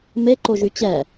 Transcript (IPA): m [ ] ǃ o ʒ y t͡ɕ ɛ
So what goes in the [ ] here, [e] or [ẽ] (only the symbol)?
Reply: e